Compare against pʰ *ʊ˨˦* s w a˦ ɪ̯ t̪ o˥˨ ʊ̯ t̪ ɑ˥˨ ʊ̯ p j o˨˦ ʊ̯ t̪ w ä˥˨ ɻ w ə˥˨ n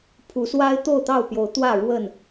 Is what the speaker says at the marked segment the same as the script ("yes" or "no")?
no